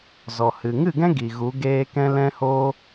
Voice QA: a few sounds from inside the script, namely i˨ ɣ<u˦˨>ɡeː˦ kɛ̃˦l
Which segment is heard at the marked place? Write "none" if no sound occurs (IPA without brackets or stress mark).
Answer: u˨˦